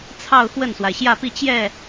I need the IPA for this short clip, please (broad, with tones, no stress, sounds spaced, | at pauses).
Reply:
t͡sʰ ɑ˥˧ ʊ̯ x w ə˥˩ n s w a˩ ɪ̯ ɕ j ä˥˧ p i˥˧ t͡ɕ j ɛ˥˩